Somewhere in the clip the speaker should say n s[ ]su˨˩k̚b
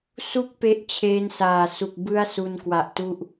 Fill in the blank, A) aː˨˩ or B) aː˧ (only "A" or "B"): A